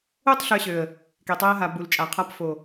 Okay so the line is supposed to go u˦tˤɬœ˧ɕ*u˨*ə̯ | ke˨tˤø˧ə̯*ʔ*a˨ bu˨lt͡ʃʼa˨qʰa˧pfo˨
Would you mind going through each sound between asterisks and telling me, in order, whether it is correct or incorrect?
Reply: incorrect: ø˨, incorrect: ɦ

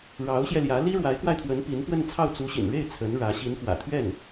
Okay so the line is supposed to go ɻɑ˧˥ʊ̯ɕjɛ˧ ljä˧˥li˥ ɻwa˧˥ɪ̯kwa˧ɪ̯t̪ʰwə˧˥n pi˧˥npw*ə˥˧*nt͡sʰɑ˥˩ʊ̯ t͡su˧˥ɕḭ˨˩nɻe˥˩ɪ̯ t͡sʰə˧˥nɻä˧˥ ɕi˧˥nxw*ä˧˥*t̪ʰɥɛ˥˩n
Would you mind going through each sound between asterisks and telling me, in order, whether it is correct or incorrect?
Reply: correct, incorrect: ä̰˨˩

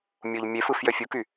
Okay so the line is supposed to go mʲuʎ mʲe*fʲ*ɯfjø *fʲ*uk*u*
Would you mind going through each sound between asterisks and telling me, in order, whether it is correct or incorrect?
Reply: incorrect: f, correct, incorrect: y

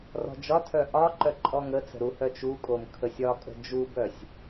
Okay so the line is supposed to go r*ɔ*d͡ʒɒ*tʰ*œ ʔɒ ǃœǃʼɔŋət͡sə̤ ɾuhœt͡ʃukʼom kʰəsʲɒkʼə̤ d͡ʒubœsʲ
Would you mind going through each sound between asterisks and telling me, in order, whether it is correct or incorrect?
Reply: incorrect: ɔ̤, correct

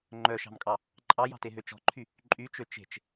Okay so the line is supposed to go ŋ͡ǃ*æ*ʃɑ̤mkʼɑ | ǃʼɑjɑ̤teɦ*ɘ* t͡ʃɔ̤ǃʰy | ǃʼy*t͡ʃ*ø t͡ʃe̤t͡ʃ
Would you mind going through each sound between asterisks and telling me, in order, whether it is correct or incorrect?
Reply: incorrect: œ, incorrect: ø, correct

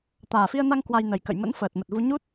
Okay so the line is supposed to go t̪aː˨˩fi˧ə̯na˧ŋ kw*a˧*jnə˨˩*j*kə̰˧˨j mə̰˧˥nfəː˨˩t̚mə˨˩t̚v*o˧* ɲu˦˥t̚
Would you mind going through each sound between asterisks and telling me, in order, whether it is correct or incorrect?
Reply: correct, correct, incorrect: u˧

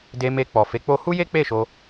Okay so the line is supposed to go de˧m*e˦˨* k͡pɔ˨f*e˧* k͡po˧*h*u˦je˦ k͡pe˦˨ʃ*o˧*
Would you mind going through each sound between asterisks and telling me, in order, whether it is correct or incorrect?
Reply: incorrect: e˧, incorrect: e˨˦, correct, correct

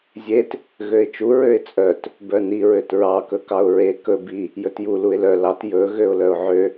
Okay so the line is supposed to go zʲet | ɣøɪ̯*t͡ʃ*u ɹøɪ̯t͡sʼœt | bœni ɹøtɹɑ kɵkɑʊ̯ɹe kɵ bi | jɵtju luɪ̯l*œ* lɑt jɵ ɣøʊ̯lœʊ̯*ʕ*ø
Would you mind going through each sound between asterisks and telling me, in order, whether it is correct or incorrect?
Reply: correct, correct, correct

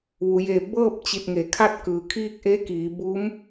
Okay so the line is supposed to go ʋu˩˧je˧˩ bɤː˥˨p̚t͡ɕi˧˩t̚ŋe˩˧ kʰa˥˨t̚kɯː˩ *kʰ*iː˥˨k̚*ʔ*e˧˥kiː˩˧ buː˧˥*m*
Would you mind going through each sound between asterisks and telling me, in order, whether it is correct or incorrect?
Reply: correct, correct, correct

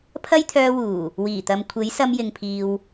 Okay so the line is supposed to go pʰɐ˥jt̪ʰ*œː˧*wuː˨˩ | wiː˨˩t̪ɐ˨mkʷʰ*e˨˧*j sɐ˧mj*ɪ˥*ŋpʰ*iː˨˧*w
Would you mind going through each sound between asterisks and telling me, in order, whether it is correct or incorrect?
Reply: correct, incorrect: e˨˥, incorrect: ɪ˨, incorrect: iː˨

